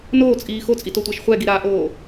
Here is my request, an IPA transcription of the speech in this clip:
n oː t͡sʼ iː x o t͡sʼ i t o tʷ æ ʃ χʷ ɛ ɡ i ɾ aː ʔ oː

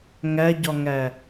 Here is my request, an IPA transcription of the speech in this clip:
ŋ æ ɟ ɒ ŋ æ

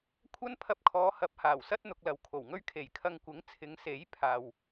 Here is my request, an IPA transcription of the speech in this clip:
kʷʰ ɐ˥ n pʰ ɐ˧ p̚ kʰ ɔː˨˧ h ɐ˨˥ p̚ h aː˨˩ w s ɐ˥ t̚ n̪ ʊ˧ k̚ l ɐ˨˧ w kʰ o˨˩ w ŋ ɵ˥ ɥ kʰ e˨˩ j kʰ ɐ˧ ŋ kʷ ɪ˨˥ ŋ t͡sʰ ɪ˨˧ ŋ s e˨˥ j pʰ aː˨ w

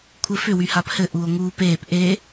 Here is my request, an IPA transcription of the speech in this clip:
kʷʰ ɘ f ʏ w y h a p h ɘ ʔ u o̯ ŋ uː p eː p ʔ e

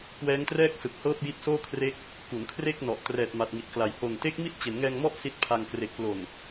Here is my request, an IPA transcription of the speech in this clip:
k w ɛː˦˥ ŋ t r ɛː˥˩ k̚ s ɯ˨˩ k̚ h ɤː˥˩ p̚ j i˦˥ t̚ s oː˥˩ kʰ r e˦˥ k̚ | k u˩˦ n kʰ r e˥˩ k̚ n ɔ˨˩ ʔ t r ɛː˨˩ t̚ m a˨˩ t̚ ŋ i˨˩ t̚ k l a˨˩ j h o˨˩ n t e˦˥ k̚ m i˥˩ t̚ t͡ɕ e˩˦ n ŋ ɛː˧ ŋ m ɔ˥˩ ʔ s i˦˥ t̚ pʰ a˧ ŋ k r e˨˩ k̚ p l o˨˩ n

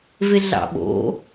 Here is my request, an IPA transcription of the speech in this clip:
v e ɮ ɑ̰ ɓ o̰

